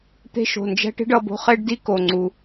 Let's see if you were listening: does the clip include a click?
yes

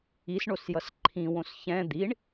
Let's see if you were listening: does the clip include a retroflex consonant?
yes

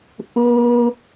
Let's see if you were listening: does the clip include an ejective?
no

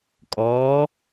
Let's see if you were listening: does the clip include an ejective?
yes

